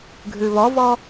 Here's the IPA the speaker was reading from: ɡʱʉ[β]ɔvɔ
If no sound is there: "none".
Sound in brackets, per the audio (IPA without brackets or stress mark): β